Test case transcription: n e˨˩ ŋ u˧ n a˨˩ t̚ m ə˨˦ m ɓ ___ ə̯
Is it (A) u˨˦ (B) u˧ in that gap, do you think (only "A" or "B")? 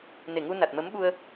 B